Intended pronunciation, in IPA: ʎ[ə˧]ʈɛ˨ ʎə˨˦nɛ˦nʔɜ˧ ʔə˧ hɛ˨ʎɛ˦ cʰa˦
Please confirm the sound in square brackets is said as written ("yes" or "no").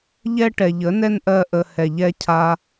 no